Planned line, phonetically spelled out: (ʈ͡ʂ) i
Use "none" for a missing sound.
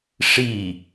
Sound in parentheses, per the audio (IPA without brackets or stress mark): ʂ